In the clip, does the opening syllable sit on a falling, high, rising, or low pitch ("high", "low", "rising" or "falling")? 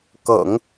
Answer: low